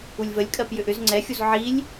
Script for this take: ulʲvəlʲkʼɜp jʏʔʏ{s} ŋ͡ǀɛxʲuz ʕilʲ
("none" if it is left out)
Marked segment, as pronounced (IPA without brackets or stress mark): z